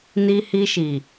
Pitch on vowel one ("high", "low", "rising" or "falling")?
high